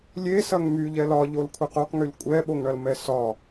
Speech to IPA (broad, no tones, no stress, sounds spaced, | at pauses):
lʲ e s ɐ ŋ m y ʎ ɛ l ɒ ʎ o l kʷʰ e q o q ŋ y l kʷʼ ɛ ɓ o ŋ ɳ ɐ l m ɛ s ɒ